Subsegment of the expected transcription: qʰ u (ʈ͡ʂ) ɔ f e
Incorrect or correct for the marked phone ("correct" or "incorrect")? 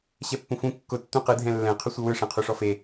incorrect